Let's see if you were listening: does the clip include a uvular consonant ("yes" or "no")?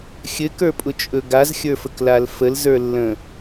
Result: no